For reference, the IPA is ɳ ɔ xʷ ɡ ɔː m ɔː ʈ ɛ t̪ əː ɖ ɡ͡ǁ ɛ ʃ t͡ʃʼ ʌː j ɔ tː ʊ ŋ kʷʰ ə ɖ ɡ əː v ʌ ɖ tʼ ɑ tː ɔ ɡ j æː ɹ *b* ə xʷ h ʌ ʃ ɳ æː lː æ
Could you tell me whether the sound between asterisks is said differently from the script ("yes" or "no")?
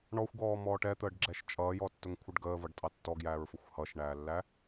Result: yes